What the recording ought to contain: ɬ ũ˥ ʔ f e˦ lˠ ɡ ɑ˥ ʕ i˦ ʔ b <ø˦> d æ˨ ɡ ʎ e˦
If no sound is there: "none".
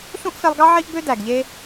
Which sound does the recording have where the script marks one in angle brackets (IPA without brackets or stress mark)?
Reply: ø˦